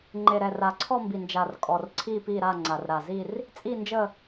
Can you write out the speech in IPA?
ŋ͡ǃ e˨˩ ɾ ɛ˨˩ r a˨˩ ǀʰ ɔ˥˧ m b i˨˩ n d͡ʒ a˨˩ r kʼ ɔ˨˩ r ǀʰ iː˥˧ p iː˥˧ ɾ a˥˧ ŋ͡ǀ a˨˩ r ɾ a˨˩ z i˥˧ r | t͡sʼ i˥˧ n d͡ʒ ə˥˧

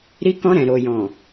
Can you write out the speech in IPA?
ɾ i˧ k ɔ̃˧ ɾ ɛ̃˨ ɾ o˨ j ɔ̃˨

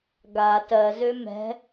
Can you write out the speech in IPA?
ɡ a t ɜ z ø m ɛ̤

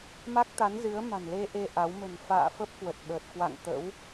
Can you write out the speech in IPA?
m a˦˥ k̚ t̪ a˨˦ n z ɨ˨˦ ə̯ m a̤˨˩ n l e˧ ʔ e˧ ʔ a˨˦ w m ə̤˨˩ n f a̰ː˧˨ f ə˦˥ p̚ k w ə˨˩ t̚ ɓ əː˨˩ t̚ k w a̰˧˨ ŋ t̪ ə̰˧˥ w

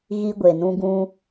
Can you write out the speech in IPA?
ɣ i˦ ɡʷ e˨ n ũ˦ ɡ ũ˦

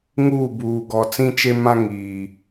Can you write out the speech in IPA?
ŋ uː˦˨ b uː˨ ɡ ɔ˨ t͡s ĩ˦ t͡ʃ e˦ m ã˦ ŋ iː˨

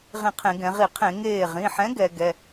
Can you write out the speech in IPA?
ʁ ĩ˧˩ qʰ ẽ˧˩˧ ɡ ɛ̃˩˧ ʁ i˧˩˧ qʰ ẽ˧˩˧ ŋ eː˧˩ ʁ ĩ˩˧˩ ħ ɛ̃˨˥ ɡ ɛ˩˧ ɡ ɛ˩˧˩

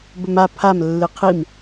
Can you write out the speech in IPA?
b ɵ m a pʰ a m lː ɨ qʰ i m

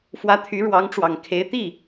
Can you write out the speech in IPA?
f w ä˧˥ t̪ʰ y˧˥ ɻ w ɑ˧˥ ŋ ʈ͡ʂ w ɑ˨˩ ŋ kʰ e˧˥ ɪ̯ t̪ i˥˩

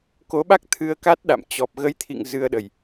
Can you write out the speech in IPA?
k o˨˦ ɓ a˦˥ k̚ t̪ʰ ɨ˧ ə̯ k a˦˥ t̚ ɗ a̰˧˨ m t͡ɕ ɔ˨˩ p̚ ɣ ə˨˦ j t̪ʰ ḭ˧˨ ŋ z ɨ˧ ə̯ ɗ ə˨˩ j

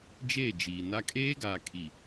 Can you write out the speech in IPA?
d͡ʒ e˦˨ d͡ʒ i˨ n a˦ kʼ eː˦ ɡ aː˨ kʰ i˨

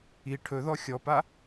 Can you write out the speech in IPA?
i ʈʰ ɵ ð ɔ xʲ ɔ p a

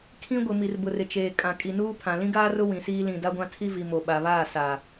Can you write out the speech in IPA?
kʰ ĩ˦ ɡʷ ɪ˨ m i˨ r b ʊ˨ r ɪ˨ t͡ʃ eː˨ kʼ ã˨ kʼ i˨ n uː˦ pʰ ã˨ l ĩ˦ ɡ aː˦ r ʊ˦ w ĩ˨ s iː˦ l ĩ˨ d a˦ ɡʷ ã˦ tʰ i˦ v i˨ m o˨ ɓ a˨ β aː˦˨ s a˨

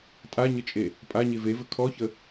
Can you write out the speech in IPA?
tʼ a ɲ ə t͡ʃʼ e | pʼ a ɲ e v e v ɘ kʰ ɔ ç ə

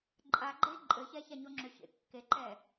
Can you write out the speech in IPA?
ǃʼ a ɡ͡ǃ e ǃʼ ɘ ç ɛ ç a ɲ o ŋ͡ǁ ʏ ç ḛ kː e ǃ ɛ

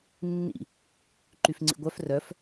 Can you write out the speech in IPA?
nː ḭ | ǃ y f ŋ͡ǀ ḭ ɡʷ œ f r œ f

